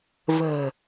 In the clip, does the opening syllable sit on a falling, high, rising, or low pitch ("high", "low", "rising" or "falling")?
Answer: low